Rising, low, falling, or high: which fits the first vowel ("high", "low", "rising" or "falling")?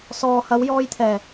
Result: low